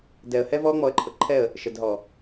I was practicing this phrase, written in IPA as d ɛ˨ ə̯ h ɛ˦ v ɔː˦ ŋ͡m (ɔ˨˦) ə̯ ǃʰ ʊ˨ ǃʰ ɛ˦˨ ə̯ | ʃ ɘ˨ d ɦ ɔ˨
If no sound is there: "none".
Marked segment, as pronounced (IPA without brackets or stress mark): ɔ˨˦